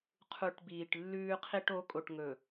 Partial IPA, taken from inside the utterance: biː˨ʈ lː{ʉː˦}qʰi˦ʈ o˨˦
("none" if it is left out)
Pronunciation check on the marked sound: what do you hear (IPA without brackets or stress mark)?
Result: ʉː˦